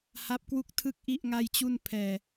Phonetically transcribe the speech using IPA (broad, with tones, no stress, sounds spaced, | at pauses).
h a˦˥ p̚ k w u˥˩ k̚ tʰ ɯ˥˩ k̚ ʔ i˥˩ ʔ ŋ a˥˩ j t͡ɕ u˥˩ n pʰ ɛː˧